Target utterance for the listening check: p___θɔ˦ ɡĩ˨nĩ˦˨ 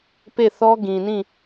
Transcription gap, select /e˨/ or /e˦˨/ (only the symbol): e˦˨